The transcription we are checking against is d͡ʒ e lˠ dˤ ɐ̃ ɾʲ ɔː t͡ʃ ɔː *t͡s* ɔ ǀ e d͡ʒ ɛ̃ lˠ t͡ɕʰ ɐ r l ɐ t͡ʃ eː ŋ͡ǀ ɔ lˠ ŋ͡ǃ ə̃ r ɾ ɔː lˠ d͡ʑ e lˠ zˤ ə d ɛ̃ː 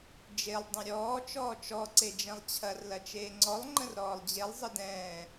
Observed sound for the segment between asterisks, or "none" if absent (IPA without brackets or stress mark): t͡ʃ